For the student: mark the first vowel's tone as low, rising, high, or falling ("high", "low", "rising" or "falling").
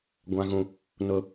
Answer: high